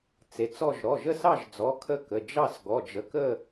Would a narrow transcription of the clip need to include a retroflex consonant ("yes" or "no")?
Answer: no